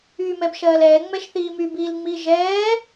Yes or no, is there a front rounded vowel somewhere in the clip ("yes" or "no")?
yes